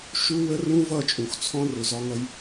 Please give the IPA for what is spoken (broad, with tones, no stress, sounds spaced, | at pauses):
ʃ u˦ w ə˦ r ũ˦ v ʌ˦˨ t͡ʃʼ ũ˨ x t͡sʰ ɔ̃˦ r ʊ˨ z ɒ˦ ŋ ʌ˦ j